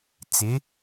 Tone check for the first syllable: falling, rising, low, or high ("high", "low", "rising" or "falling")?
rising